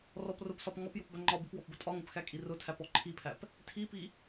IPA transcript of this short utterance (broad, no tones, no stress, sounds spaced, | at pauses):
r ɔ p r ʊ p s ɒ p ŋ ɒ p j ʊ p b æ ŋ͡ǃ ɒ b i p w ɔ p b ʊ tʼ ɒ ŋ ʊ p x æ kʼ i r ʊ tʰ æ p ɔ ǃʰ i pʰ æ p | tʰ i p i